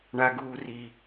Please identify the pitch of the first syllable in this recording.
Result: high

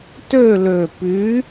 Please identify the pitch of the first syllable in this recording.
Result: falling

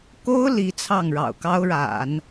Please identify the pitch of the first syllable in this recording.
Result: high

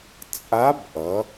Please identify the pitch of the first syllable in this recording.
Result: rising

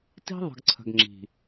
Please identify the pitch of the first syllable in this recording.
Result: high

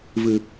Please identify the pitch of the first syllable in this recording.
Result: low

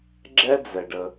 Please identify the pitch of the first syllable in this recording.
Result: high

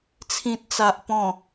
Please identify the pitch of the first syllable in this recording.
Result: low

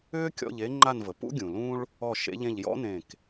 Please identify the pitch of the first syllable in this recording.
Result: high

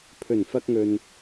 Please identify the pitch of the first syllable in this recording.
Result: low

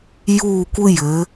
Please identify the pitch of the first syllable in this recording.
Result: falling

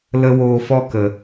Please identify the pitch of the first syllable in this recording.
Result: high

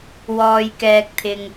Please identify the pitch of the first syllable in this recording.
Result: low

